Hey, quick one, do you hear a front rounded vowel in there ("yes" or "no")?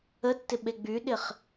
yes